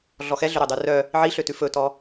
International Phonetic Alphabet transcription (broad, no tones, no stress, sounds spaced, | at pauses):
ɮ ɔ x ɛ ɮ ø ɾ ɵ dˤ ʉ r œ | ʕ i ɬ ø t ʉ f ɵ t ɔ